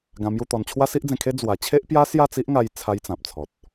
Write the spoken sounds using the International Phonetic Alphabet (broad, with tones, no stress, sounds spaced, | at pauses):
ɡ ã˧ m j u˥˧ t̪ ɔ˧ n t͡ɕʰ w a˦ s i˦ ʔ d͡z ẽ˧ kʰ e˦ d͡z w a˧ t͡ɕʰ e˦ ʔ p j a˦ s j a˥˧ t͡s i˦ ʔ ŋ a˧ j t͡sʰ a˦ j t͡s ã˨ p̚ t͡sʰ ɔ˨ t̚